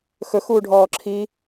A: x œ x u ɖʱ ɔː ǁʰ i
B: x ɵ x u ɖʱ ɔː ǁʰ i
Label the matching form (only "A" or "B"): B